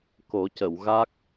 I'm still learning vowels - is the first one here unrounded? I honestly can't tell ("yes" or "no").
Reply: no